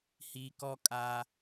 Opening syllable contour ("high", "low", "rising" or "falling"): low